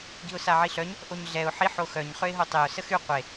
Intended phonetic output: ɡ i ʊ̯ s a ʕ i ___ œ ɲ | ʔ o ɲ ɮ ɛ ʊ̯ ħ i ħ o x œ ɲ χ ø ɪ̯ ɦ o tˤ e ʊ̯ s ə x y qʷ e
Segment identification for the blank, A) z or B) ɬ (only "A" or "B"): B